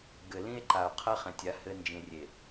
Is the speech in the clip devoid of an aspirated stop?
no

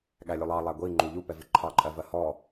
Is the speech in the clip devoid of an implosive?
no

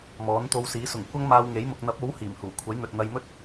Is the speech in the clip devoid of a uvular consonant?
yes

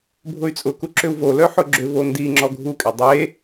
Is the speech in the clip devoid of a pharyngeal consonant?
no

